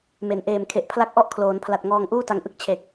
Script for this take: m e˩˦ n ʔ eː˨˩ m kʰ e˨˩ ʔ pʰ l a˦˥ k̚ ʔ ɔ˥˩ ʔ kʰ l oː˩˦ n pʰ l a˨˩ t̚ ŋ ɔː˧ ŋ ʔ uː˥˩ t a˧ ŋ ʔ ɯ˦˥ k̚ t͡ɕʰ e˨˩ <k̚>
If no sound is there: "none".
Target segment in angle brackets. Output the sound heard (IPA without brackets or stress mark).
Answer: k̚